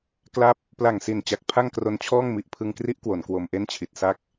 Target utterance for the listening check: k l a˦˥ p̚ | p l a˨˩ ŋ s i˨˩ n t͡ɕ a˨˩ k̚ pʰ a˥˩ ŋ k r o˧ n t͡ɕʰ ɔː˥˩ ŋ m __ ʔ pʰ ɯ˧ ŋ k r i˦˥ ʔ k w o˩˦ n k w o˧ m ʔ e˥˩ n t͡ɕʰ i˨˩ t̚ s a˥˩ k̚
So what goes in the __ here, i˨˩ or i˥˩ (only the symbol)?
i˨˩